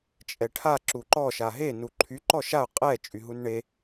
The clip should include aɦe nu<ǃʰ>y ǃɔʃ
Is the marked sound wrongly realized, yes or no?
no